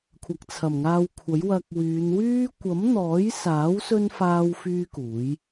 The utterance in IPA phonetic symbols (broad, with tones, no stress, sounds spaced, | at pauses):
kʷʰ ɐ˨ k̚ t͡sʰ ɐ˨˩ m ŋ aː˧ w kʷʰ ɐ˨˥ j w ɐ˧ k̚ w yː˨˧ n w yː˥ kʷ ɐ˨˥ m n̪ ɔː˨˥ j s aː˨˥ w s ɵ˥ n f aː˥ w f yː˥ k uː˨˥ j